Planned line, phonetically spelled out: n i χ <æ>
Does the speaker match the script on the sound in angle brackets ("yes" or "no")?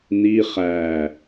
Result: yes